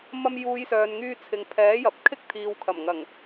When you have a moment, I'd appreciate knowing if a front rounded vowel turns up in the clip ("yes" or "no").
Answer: yes